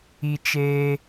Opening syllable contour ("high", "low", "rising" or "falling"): high